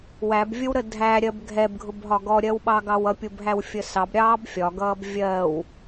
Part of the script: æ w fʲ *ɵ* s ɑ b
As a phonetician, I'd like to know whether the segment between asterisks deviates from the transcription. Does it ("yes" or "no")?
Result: yes